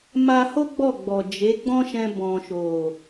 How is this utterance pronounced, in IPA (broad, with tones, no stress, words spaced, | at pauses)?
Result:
ma˧ho˦ ɡ͡bɔ˦˨ɡ͡bɔ˨ d͡ʒe˨˦ɡ͡bɔ̃˦ʃɛ̃˧ bɔ̃˨ʃo˨